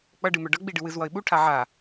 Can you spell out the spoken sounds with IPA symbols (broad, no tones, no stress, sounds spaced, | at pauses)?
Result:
k͡p ʌ ɖ ɨ m œ ɖ ʌ ɡ͡b i ɖ ɨ w ɨ z w ʌ ɪ̯ ɓ u ʈʰ a ʕ a